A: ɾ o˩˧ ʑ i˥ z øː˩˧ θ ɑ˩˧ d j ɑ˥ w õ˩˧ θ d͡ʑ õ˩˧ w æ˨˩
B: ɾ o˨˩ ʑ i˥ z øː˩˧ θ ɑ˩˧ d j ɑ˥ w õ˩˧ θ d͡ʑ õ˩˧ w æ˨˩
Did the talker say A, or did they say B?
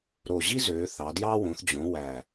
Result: B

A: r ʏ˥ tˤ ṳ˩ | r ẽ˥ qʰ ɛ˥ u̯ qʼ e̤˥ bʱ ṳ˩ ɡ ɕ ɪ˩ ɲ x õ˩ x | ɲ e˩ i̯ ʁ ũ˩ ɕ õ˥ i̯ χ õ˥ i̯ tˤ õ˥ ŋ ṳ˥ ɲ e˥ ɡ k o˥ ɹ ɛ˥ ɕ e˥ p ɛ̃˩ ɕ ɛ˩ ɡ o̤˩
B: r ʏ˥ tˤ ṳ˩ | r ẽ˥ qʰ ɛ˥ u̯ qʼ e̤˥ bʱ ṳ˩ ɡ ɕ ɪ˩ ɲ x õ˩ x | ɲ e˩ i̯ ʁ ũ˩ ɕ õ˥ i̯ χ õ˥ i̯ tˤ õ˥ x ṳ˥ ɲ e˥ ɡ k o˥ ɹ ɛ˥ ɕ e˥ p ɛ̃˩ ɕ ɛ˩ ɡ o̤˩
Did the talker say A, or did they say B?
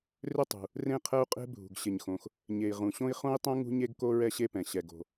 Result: A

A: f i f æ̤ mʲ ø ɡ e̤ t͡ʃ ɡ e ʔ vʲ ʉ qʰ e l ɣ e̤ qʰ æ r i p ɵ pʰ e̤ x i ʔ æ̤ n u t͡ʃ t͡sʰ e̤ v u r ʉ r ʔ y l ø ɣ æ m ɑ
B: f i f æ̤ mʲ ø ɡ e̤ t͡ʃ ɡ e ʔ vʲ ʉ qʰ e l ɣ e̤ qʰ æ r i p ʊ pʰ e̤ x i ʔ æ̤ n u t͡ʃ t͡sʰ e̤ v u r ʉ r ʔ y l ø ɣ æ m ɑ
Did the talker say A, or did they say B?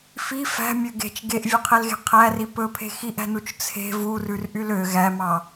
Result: A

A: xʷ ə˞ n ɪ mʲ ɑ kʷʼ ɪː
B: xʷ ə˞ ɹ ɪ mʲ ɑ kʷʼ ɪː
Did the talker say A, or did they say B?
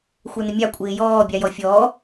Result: A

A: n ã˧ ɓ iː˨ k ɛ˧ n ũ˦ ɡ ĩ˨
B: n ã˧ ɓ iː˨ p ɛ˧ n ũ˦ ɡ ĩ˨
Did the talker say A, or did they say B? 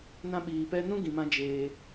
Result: B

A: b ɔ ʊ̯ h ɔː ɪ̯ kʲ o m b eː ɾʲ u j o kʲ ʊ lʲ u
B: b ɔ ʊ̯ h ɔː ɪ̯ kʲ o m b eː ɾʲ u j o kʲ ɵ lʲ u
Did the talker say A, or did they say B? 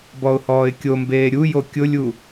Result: A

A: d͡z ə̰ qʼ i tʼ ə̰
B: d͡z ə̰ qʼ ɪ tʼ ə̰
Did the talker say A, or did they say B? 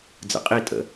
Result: A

